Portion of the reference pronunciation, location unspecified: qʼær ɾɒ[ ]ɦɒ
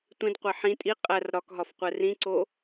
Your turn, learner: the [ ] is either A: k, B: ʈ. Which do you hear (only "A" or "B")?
A